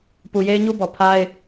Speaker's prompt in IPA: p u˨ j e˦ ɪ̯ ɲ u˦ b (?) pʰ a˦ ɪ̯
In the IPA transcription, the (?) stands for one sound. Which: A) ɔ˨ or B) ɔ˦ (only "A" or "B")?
A